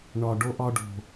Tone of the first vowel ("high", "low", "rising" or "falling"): low